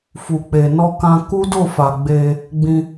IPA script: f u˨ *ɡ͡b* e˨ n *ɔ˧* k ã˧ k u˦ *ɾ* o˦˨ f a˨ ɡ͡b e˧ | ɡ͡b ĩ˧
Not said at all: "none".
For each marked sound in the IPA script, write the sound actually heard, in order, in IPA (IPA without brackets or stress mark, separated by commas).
k͡p, ɔ˧, d